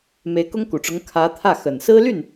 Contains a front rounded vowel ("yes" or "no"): yes